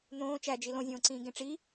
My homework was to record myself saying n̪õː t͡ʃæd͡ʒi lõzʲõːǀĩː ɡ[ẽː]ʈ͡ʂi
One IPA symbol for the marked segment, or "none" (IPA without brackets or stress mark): ẽ